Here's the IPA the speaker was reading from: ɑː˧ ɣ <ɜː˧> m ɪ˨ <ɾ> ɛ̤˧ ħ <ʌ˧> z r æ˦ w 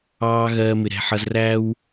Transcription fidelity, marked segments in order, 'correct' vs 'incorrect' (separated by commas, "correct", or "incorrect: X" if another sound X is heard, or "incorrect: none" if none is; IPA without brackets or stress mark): correct, correct, correct